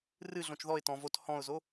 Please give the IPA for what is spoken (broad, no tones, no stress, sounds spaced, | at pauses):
r ɨ ɮ õ t͡ʃ ð ɔ ɪ̯ t ɔ̃ v o t h ɔ̃ ʊ̯ z o